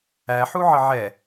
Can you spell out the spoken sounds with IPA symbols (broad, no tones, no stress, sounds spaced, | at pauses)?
æ ħ u ʕ ə ʕ ɛ